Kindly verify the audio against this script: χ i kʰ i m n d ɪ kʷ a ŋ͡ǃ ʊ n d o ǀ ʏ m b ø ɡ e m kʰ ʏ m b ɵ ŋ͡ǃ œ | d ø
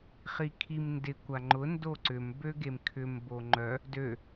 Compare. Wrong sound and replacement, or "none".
ɵ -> o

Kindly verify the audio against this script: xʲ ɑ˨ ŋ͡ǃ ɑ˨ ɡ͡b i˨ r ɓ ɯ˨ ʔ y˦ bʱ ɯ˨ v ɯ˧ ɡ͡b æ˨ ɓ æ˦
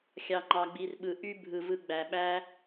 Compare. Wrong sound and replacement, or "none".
none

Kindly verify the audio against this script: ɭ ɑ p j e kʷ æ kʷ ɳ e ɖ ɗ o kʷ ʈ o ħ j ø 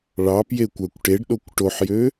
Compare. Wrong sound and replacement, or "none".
ɳ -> ʈ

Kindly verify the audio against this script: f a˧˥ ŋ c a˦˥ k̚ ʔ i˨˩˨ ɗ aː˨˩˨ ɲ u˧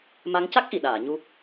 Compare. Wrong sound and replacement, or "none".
f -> m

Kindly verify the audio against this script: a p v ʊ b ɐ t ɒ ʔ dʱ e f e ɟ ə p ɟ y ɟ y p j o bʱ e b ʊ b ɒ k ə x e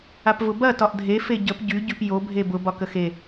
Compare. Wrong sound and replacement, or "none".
none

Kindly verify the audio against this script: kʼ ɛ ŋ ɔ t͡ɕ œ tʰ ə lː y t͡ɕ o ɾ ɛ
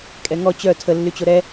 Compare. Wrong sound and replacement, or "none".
none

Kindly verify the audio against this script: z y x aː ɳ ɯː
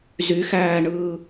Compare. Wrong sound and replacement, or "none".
aː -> æː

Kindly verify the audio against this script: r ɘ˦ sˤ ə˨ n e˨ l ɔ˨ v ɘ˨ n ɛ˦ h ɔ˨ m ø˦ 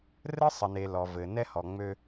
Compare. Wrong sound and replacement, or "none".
m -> ŋ͡m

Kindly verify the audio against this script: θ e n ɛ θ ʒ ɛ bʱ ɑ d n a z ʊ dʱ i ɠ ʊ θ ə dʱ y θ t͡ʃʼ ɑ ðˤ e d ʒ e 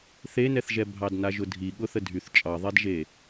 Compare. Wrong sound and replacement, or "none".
z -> ʒ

